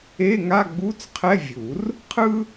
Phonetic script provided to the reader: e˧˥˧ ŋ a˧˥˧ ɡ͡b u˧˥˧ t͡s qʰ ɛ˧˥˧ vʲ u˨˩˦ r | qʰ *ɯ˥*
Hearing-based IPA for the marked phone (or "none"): ɯ˥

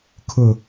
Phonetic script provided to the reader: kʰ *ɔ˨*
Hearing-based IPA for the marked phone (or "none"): ʊ˨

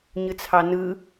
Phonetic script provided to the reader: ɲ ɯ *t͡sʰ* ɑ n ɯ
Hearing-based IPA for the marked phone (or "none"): t͡sʰ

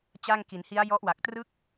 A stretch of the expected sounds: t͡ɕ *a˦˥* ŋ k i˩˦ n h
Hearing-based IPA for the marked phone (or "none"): a˥˩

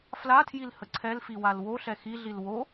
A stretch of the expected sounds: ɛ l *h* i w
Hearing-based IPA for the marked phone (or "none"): f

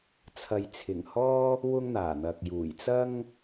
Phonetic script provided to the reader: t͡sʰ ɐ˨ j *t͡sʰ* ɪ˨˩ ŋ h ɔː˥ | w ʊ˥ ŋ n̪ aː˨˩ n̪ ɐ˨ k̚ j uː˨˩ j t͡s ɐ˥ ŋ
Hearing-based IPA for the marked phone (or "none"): t͡sʰ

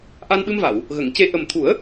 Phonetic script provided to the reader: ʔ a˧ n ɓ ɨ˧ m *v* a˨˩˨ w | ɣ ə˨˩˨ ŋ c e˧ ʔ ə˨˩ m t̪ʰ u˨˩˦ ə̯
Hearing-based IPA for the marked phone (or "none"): v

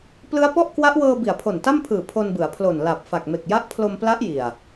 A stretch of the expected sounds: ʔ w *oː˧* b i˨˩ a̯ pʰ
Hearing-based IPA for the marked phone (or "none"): ɤː˧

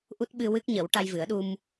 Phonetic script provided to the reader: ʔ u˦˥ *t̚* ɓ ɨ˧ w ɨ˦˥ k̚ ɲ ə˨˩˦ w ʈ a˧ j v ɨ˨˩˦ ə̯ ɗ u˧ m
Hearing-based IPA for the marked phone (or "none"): t̚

